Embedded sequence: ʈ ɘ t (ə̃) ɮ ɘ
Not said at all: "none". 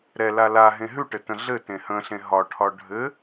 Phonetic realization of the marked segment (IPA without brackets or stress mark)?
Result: ə̃